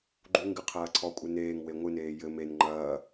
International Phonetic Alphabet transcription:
ɡ͡ǃ u ŋ ɡ ɨ qʰ ɐː ǀʰ ɔ kʷʼ ɨ n eː ŋ w e ŋʷ ɨ n eː j ɘ m e n ŋ͡ǃ ɐː

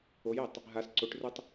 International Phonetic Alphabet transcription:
o j ɛ tˤ | ɦ a s ǀ o ʈ r u tˤ

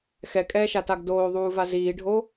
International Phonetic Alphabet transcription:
x ɛ kʼ ɛː ʃ a t a ɡ d oː ðˤ uː v a z iː ɖʱ o

